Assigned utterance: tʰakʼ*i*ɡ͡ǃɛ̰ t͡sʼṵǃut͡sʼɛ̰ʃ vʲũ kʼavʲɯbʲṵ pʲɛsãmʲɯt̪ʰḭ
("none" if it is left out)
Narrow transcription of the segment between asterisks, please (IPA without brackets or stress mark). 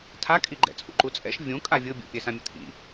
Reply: i